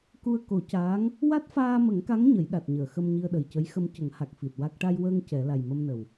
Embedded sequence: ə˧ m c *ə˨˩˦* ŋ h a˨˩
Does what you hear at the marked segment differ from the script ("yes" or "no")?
no